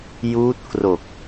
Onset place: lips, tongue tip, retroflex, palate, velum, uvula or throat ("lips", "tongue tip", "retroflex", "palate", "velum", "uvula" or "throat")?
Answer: palate